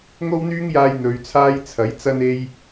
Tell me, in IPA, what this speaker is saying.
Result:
ŋo˥wn̪yː˥ŋjaː˧j n̪ɵ˨˧ɥt͡sʰaː˥j t͡sʰɐ˨˥jt͡sɐ˥ne˥j

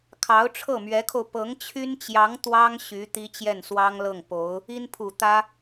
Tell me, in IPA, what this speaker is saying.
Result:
kʰɑ˧˥ʊ̯ʈ͡ʂʰɤ˥˩mɥɛ˧˥kʰo˧ʊ̯ pɤ˧˥ŋt͡ɕʰy˥nt͡ɕjɑ˧˥ŋ t̪wɑ˥ŋ ɕy˧˥ t̪i˥t͡ɕjɛ˥˩nswɑ˥ŋlɤ˥˩ŋ po˧˥ʊ̯ | i˥npʰu˨˩t̪ä˥

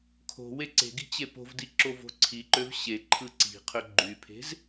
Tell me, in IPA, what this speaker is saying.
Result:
kʰo̤ weǀe̤ɡi̤ t͡ɕepo̤vdi ǁovo̤ǀʰiǃøv ɕe ǃʰɯǀi̤qʰø ɡ͡ǃypʰe̤z

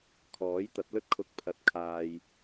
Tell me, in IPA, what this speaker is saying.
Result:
kʰɔː˨˥jt̪ɐ˨˥t̚lɵ˥t̚kʰʊ˧k̚ pʰɐ˧t̚kʰaː˧j

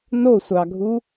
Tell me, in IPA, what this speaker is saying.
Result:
nosʷɑɡʱu

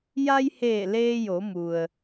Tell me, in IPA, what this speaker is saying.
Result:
ja˧jheː˧˩ leː˧jo˩˧mu˩ə̯

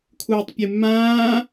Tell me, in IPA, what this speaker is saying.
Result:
kʰuːtˤpʲɨmːãː

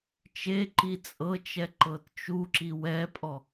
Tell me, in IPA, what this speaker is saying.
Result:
t͡ʃeǃi t͡sʼɤt͡ʃɛ ǃɤtt͡ʃuǁi wɛpʼɔ

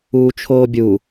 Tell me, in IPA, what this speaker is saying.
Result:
uːt͡ʃʰoːbʲu

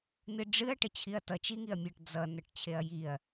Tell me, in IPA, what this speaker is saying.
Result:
nɨɖ͡ʐɨɐ̯ ʈət͡ɕʰiɐ̯tʌ t͡ʃiŋiɐ̯mʲʌʈ d͡zʌ nʌʈt͡ɕʰeɐ̯jiɐ̯

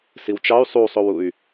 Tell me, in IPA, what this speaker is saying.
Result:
siwt͡ʃɑy̯ sˤusˤowuy̯

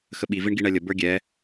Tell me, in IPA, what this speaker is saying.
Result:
xəɓi viɳɡiɳɛlʲə bə˞ɡʲɛ

